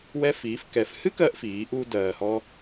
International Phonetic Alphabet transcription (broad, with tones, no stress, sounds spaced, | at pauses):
w ɛ˧ f iː˩˧ f k ɛ˩ f h ɨ˥ k ɜ˧ ʔ f iː˩˧ ʔ u˧ d ɜː˩ h ɔ˧